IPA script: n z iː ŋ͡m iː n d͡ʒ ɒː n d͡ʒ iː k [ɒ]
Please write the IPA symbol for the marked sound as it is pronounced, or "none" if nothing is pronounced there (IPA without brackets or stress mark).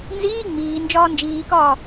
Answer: ɒː